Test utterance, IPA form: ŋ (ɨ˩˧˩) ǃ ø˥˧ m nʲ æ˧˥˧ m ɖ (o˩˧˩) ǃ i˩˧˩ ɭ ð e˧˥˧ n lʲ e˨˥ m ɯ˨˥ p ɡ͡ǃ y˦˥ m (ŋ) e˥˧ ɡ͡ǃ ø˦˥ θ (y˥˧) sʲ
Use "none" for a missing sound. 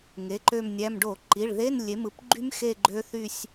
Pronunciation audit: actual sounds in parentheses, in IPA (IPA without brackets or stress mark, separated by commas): e˩˧˩, o˧˩˧, x, y˥˧